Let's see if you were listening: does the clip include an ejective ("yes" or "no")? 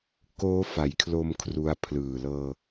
no